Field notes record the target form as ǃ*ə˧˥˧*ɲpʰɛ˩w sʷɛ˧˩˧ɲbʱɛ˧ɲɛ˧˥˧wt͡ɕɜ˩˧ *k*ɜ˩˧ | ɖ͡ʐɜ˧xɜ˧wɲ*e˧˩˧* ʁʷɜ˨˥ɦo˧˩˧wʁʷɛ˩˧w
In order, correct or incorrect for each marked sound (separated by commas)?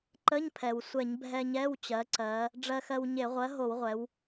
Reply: correct, incorrect, correct